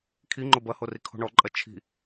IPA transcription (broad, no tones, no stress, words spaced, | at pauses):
kʰiŋ͡ǃo bɐhorikʰo̤ ɳɔǃʼɐ t͡ʃʰi̤